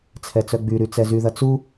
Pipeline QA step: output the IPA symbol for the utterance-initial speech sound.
t͡sʰ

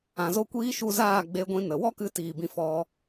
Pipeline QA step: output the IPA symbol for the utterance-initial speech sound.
ã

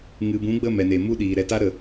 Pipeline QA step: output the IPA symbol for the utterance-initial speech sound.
ŋ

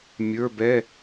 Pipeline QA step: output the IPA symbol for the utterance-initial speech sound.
mʲ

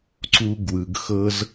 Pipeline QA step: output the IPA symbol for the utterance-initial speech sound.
ǀ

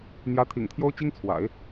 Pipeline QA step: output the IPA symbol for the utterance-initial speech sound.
n̪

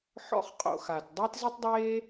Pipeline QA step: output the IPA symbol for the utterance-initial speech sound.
ħ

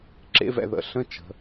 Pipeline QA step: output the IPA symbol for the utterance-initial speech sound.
ǁ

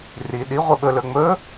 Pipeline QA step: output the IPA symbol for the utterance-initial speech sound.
r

